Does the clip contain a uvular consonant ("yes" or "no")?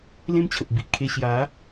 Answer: no